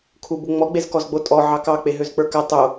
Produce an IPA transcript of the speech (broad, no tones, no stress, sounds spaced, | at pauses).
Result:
kʰ u b u ŋ͡m ɔ ɡ͡b e z k ɔ z ɡ͡b o tʼ ɔ ʕ ɑ k ɑ k͡p e ɦ ø z k͡p ə˞ k a tˤ o